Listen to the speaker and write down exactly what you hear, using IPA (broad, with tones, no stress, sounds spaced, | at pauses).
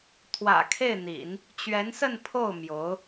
t̪ʰ w ä̰˨˩ kʰ e˥˩ ɪ̯ n̪ ḭ˨˩˦ n | t͡ɕ ɥ ɛ˧˥ n s ə˥˧ n pʰ o˥˩ ʊ̯ m j o˧˥ ʊ̯